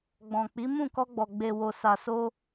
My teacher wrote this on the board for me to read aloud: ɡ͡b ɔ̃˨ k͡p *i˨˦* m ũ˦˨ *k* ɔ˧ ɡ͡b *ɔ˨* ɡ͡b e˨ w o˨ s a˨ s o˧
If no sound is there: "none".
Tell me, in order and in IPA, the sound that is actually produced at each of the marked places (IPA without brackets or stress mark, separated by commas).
i˨˦, k, ɔ˨